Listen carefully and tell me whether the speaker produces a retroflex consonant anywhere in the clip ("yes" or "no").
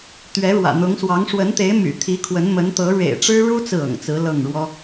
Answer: yes